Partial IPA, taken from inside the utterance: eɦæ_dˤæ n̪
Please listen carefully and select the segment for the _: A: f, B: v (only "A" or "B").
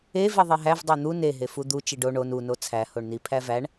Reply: B